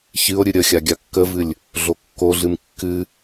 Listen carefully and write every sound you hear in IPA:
ç ɨ o̯ ɾʲ ɨ ɾʲ ə xʲ a ɡʲ a kː ə v ɨ lʲ | ɮ o kː o ɮ ɨ m kː ɨ

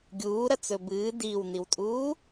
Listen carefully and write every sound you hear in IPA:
ɡʲ uː ɾ ɐ t͡s ɵ b ɨː d iː w n i w tʼ uː

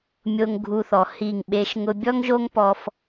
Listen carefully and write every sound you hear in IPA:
mʲ o˧ ŋ ɡʱ u˧ θ ɔ˨ h i˦˨ ŋ ɓ e˦ ʃ ŋ ʊ˧ bʲ ɔ˦ ŋ ʒ o˦ ŋ p ɔ˦ f

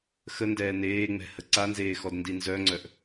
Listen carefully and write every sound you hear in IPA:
x ə n d ɛː n eː ŋ͡m ɛ̤ h ə ǀ a n z eː x ɔ d n d i n z œ ŋ͡ǀ œ ʔ

